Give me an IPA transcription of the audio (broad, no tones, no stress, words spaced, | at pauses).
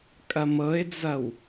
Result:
kʼɐmɤɪ̯d͡zɐw